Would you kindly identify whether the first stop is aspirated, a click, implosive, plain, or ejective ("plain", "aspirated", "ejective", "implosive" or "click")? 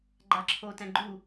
click